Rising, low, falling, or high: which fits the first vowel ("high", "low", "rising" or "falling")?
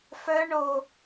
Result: high